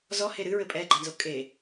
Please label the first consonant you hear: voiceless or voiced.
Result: voiced